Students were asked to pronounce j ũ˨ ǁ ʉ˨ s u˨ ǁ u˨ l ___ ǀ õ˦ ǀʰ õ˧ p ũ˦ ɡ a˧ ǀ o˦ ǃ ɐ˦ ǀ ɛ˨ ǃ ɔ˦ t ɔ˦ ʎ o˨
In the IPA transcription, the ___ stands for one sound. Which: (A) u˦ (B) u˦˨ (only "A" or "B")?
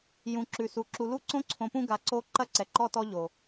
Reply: B